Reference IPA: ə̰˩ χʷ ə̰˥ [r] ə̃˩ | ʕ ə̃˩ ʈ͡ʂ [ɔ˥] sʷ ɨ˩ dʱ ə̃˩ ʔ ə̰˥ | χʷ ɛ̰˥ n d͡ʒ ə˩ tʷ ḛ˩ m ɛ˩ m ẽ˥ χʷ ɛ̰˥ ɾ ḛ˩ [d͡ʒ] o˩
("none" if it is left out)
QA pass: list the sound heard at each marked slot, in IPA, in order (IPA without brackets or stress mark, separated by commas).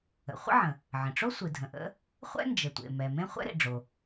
ʕ, o˥, ɖ͡ʐ